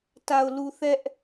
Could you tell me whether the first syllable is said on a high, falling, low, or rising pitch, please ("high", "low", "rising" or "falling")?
low